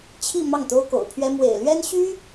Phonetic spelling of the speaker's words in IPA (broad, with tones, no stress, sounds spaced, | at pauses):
t͡ɕʰ i˥˧ m ɑ˥˩ ŋ t̪ o˥ ʊ̯ k o̰˨˩ ʊ̯ pʰ ɥ ɛ˥ m w ḛ˨˩ ɪ̯ l ɥ ɛ˥ n ɕ y˥